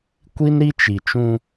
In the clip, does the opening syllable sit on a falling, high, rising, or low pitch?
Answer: high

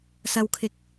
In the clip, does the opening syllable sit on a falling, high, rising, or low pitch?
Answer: low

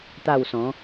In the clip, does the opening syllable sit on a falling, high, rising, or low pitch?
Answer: falling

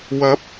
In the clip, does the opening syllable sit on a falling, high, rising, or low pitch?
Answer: rising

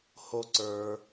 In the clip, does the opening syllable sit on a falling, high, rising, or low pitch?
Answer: high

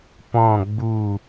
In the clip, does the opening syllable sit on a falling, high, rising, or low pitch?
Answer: falling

